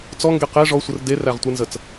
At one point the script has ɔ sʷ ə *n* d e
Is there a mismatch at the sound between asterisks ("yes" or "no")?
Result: yes